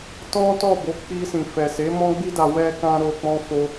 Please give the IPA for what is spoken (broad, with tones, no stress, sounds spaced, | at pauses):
t ɔ̃˦ t ɔ˦˨ b o˨˦ k͡p i˧ s ĩ˨ f ɛ˨ s e˨˦ m ɔ̃˦ ɡ͡b i˦ d a˧ w ɛ˧ k ã˧ ɾ o˧ k͡p ɔ̃˦ f o˦